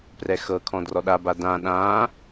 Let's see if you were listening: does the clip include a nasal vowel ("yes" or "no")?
yes